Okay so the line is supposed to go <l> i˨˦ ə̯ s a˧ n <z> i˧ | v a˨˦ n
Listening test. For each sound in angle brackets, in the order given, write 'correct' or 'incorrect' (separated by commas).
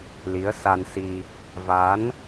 correct, incorrect